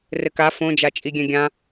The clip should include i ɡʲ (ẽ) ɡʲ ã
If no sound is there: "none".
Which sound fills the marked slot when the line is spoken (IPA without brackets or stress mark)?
ɛ̃